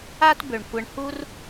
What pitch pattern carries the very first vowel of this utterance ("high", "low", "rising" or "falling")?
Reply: high